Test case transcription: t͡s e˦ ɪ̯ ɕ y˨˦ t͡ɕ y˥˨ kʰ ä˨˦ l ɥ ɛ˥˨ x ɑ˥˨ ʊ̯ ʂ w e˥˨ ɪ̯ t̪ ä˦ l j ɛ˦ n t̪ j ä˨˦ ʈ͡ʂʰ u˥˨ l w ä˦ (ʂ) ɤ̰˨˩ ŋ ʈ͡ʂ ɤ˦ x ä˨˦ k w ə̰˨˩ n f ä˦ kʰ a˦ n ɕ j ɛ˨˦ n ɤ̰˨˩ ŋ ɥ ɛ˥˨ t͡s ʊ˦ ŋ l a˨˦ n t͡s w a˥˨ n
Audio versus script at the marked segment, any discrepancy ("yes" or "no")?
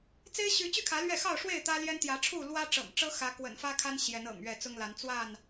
yes